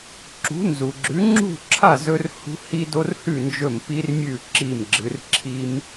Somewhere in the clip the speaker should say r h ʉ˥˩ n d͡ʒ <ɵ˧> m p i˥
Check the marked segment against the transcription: incorrect: ɵ˥˩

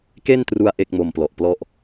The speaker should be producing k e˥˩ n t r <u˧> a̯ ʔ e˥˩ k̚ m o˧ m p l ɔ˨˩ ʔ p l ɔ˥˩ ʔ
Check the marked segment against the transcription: correct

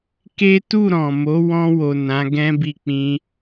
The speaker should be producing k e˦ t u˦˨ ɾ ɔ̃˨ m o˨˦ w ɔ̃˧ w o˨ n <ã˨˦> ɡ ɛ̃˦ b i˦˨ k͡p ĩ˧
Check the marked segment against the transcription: correct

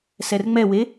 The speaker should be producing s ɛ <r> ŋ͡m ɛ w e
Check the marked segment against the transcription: correct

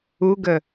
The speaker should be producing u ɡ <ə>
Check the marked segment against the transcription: correct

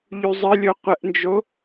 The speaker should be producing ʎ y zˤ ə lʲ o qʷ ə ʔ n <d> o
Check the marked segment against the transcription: incorrect: d͡ʒ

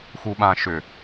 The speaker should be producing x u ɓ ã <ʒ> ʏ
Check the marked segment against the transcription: incorrect: ʃ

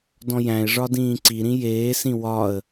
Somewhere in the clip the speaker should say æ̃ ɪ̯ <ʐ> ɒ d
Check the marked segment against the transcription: correct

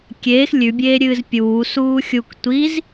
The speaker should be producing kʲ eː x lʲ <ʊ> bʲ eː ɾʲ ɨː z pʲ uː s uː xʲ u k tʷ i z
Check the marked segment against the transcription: incorrect: ʉ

